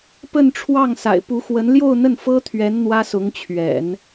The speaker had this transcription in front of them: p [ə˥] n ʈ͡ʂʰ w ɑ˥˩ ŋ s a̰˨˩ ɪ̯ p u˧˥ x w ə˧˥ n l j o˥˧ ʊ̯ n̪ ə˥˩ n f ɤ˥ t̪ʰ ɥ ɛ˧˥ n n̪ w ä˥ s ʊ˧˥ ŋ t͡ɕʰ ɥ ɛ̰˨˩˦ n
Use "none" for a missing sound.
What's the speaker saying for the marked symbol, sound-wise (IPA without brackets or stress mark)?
ə˥˧